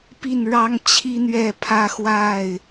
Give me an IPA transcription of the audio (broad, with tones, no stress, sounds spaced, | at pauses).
p i˥˨ n ɻ ɑ˦ ŋ t͡ɕʰ i˦ n̪ ɥ ɛ˥˨ pʰ ä˦ x w a˥˨ ɪ̯